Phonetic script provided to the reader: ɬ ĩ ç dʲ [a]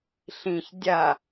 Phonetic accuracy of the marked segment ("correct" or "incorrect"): correct